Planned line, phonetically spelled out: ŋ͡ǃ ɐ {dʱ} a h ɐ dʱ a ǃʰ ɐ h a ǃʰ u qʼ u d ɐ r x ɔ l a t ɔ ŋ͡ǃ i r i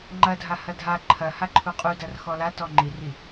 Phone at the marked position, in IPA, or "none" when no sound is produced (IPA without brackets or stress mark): dʱ